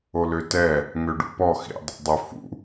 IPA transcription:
o l ø t ɛ | ŋ ø ɖ ṵ p ɔ x ḭ dˤ ṵ dˤ ø f ṵ

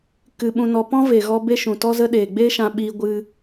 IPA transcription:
k ɨ˧ ɓ ũ˧ n ɔ˧ p ɔ̃˦ v e˨ ɣ ɔ˧ b e˦ ʃ ũ˨ t ɔ˦ z ə˦ ɗ eː˨ ɡ͡b e˦ ʃ ã˧ ɓ iː˧ ɡʷ ɨ˦

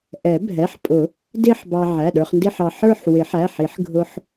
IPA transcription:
ʔ ɛ˨˩˦ bʱ ɛ˩˧˩ ħ pʼ ʊ˨˩˦ | d ɪ˥˧ ħ b ɑ˧ ʕ æ˩˧˩ ɗ ə˞˧ χ n d ɪ˥˧ ħ ɑ˧ ħ ə˞˥˧ ħ w ɪ˨˩˦ ħ æ˩˧˩ ħ i˨˩˦ ħ ɡʱ ʊ˧ ħ

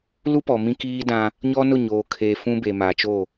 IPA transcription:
l u˦ p ɔ˨ m ĩ˦ k iː˦ d ã˦ | ɲ ɔ˦ n ʊ˦˨ ɲ oː˨ kʰ eː˨ f ũ˦ b e˨ m a˨ t͡ʃ o˦˨

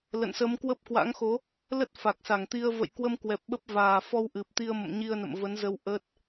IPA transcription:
l ə̰˧˨ n s ə˨˦ m k w ə˦˥ p̚ k w a̰˧˥ ŋ x o˨˦ | l ə˦˥ t̚ f a˨˩ k̚ s a˧˩ ŋ t̪ i˧ ə̯ v ə̰˧˨ j k w ə˧ m k w ɛ˨˩ p̚ ɓ ə˦˥ p̚ v aː˨˩ f ɔ˧ w ʔ ɨ˨˩ p̚ t̪ i˧ ə̯ m ə̰˧˨ m ɲ i˧ ə̯ n ə̰˧˨ m v ə˨˦ n z ə˧ w ʔ ə˦˥ t̚

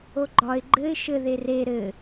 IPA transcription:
o ɡ͡ǃ ɒ ɪ̯ ɡ͡ǃ ɘ ɪ̯ ʃ ɘ ð e r e ɾ ɘ

